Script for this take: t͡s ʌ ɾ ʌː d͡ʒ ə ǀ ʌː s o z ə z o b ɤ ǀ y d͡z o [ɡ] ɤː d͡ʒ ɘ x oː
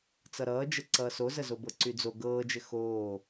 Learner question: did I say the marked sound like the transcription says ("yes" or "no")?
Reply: yes